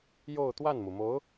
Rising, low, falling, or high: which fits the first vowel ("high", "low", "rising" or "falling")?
falling